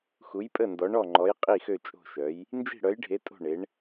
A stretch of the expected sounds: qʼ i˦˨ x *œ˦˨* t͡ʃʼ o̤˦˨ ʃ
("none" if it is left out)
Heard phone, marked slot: ø˦˨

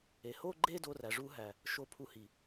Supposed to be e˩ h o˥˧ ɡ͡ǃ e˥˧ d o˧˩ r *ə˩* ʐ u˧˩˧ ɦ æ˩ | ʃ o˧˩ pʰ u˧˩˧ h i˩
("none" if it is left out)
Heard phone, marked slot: æ˩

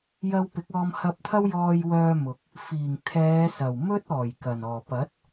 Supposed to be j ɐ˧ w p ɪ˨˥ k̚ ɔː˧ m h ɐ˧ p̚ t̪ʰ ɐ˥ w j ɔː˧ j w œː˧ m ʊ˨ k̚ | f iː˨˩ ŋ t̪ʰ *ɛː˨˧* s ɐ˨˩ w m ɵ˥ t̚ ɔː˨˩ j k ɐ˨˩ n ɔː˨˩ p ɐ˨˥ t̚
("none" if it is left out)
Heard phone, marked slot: ɛː˨˧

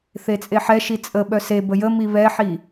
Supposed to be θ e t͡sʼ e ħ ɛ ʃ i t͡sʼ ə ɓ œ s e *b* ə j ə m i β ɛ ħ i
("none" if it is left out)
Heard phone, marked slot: b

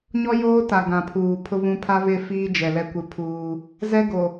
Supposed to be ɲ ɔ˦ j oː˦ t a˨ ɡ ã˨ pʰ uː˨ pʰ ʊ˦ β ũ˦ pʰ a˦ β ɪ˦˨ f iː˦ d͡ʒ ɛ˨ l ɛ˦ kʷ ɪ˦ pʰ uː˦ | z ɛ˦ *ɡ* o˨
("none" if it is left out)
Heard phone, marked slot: ɡ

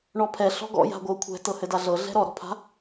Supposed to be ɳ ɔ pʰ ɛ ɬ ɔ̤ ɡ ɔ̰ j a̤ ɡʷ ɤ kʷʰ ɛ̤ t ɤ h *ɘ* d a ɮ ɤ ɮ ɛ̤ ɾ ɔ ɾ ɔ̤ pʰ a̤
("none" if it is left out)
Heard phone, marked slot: ɘ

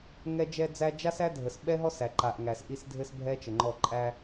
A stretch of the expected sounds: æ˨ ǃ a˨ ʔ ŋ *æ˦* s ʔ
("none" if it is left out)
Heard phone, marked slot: æ˨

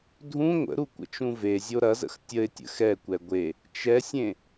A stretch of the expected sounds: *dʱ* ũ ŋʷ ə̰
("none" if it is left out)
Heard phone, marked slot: dʱ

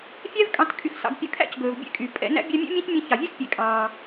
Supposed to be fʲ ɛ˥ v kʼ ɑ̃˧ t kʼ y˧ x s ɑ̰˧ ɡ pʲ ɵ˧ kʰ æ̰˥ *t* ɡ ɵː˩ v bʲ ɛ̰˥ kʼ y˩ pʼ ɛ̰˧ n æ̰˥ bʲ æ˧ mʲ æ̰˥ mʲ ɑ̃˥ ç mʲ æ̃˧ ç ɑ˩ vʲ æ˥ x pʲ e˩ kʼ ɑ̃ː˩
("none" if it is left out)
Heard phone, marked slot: c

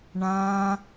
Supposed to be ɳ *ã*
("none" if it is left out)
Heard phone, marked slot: ã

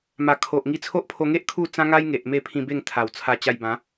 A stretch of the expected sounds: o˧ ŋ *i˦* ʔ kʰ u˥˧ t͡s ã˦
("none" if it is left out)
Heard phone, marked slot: e˦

